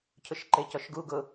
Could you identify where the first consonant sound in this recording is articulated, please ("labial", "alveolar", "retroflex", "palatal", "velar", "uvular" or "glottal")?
palatal